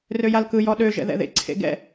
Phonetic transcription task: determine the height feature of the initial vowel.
mid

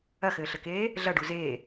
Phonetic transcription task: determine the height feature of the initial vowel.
low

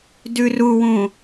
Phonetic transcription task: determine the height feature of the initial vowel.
high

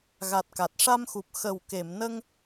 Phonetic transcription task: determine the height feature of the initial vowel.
low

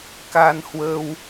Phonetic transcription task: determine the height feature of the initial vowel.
low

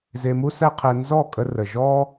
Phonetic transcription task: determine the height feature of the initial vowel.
mid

